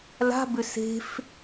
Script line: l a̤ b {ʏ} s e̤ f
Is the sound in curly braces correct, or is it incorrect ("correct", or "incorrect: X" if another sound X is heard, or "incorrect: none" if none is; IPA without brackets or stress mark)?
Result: correct